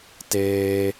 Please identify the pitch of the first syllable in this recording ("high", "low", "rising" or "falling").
high